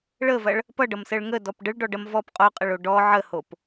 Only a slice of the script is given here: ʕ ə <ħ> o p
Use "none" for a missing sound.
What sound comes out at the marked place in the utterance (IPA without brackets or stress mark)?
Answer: h